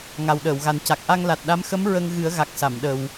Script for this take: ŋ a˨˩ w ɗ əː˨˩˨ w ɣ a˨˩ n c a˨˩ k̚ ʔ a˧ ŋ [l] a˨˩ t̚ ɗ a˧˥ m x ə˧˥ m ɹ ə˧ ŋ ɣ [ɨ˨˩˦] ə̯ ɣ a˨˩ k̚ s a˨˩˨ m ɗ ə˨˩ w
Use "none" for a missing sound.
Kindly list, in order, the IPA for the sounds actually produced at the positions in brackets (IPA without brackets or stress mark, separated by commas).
l, ɨ˨˩˦